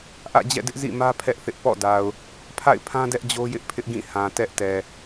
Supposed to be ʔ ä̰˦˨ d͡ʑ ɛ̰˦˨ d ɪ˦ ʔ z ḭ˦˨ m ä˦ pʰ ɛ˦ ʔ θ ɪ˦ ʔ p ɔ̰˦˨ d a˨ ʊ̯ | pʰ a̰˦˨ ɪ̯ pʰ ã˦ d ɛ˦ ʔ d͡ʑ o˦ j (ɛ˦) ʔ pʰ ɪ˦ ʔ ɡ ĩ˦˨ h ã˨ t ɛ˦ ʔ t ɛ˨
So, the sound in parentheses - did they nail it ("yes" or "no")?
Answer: no